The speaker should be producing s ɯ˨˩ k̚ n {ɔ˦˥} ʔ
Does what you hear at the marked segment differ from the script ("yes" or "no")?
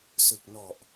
yes